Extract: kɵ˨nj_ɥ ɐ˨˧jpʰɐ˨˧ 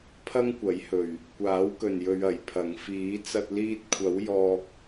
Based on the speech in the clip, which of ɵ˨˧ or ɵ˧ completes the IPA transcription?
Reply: ɵ˨˧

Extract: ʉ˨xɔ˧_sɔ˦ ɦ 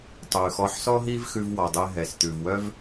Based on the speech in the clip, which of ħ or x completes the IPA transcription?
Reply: ħ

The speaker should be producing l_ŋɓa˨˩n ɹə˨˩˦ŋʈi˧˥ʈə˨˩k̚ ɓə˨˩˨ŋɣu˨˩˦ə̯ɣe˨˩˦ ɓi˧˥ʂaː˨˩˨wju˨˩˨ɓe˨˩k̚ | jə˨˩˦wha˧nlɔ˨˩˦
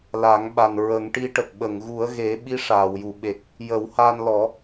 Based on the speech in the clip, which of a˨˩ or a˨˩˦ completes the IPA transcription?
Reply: a˨˩˦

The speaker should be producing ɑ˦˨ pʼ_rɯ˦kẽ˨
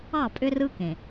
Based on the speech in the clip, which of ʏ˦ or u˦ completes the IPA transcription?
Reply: ʏ˦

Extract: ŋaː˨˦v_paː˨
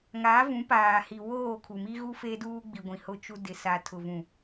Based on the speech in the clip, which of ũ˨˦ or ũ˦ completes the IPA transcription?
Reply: ũ˨˦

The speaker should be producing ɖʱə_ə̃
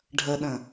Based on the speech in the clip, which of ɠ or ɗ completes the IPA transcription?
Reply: ɗ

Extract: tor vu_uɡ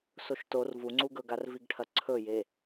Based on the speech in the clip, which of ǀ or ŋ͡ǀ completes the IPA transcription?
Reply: ŋ͡ǀ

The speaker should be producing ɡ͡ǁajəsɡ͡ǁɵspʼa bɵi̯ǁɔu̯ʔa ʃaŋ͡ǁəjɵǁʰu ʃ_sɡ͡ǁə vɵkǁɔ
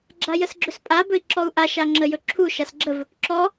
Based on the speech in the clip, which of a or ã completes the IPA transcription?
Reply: a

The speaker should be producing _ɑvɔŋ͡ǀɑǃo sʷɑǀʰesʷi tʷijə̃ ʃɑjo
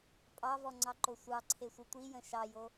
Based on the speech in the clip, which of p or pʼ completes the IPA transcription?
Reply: pʼ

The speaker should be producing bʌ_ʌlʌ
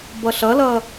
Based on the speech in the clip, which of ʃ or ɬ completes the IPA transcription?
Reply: ɬ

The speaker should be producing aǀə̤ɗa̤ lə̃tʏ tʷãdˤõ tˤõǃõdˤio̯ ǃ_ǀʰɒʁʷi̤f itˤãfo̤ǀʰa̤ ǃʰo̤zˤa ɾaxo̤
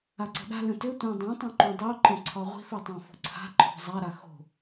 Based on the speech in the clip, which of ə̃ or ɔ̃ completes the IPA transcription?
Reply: ə̃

